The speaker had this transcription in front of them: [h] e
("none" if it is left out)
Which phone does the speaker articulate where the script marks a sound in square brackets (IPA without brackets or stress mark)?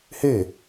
h